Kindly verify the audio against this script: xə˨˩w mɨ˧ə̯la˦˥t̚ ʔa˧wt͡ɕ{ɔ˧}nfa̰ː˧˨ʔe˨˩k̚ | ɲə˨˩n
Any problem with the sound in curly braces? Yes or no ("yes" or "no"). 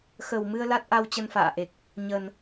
yes